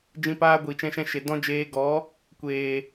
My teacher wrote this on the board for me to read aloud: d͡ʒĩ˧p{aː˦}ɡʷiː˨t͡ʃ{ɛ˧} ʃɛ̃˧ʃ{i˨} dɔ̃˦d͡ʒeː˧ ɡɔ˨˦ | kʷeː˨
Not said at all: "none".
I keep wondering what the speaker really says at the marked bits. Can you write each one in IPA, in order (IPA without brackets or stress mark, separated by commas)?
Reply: aː˦, ɛ̃˧, e˨